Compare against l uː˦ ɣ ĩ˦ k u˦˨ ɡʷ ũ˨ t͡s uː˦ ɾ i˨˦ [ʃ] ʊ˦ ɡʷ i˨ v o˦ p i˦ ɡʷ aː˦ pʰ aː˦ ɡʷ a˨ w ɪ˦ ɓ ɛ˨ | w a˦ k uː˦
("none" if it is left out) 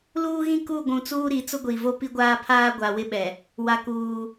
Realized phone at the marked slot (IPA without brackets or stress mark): t͡s